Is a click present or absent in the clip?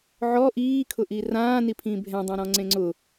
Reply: present